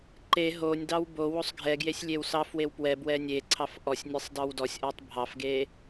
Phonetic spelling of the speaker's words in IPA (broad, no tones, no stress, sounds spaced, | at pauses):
ǃ e ɦ o nʲ d ɑ w b o w o sˤ ɡʱ ɛ ɡ j e sʲ lʲ e w s ɑ f w e w p w ɛ b w ɛ nʲ e ǀʰ ɑ f ʔ ɔ sʲ nʲ ɛ sˤ d ɑ w d ɔ sʲ ʔ ɔ tˤ bʱ ɑ f ɡ e